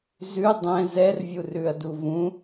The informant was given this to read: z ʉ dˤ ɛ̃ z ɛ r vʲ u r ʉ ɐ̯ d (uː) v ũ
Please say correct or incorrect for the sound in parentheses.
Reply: incorrect